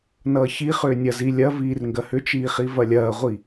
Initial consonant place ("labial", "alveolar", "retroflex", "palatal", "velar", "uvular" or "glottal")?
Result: alveolar